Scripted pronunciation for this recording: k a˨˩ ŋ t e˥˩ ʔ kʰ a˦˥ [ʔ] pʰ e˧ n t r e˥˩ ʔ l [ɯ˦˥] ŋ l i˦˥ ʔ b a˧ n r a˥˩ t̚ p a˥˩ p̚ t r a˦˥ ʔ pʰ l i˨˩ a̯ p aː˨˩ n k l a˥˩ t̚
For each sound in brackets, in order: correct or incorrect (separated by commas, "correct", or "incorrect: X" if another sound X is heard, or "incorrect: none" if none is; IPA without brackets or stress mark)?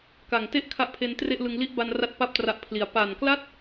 correct, incorrect: ɯ˧